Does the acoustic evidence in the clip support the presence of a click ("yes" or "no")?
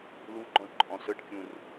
yes